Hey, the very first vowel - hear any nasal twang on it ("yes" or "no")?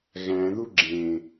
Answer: yes